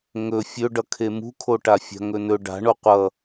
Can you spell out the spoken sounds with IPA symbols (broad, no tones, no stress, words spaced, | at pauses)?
ŋɵ fʲɵɖʌkʰe mṳkʰoʈafʲa̤ ŋɵnɵ ɖa̤ɳo qʷʌ